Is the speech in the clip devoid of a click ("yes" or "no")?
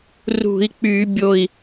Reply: yes